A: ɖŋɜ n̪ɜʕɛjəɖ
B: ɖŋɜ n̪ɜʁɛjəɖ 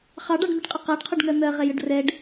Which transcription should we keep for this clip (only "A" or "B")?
B